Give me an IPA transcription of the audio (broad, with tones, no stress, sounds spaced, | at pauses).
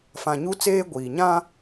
f ã˨ ɲ u˦ t͡s eː˦ ɡʷ iː˨ ɲ ã˦